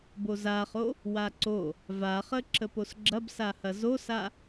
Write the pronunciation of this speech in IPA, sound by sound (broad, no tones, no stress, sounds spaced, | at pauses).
b o z a χ o | w a ǀ o | v a χ ə ǁ ə p o s ɡ͡ǁ ɐ b s a h ɐ z o s a